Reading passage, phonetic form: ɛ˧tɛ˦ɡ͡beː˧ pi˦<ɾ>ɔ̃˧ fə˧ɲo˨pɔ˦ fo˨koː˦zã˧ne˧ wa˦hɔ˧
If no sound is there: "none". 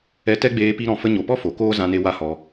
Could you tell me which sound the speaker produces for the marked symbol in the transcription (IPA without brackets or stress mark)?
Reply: ɾ